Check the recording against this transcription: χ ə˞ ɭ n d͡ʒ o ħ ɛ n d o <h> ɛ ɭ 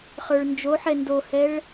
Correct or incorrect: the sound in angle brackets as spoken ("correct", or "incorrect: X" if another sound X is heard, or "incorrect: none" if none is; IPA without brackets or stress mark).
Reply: correct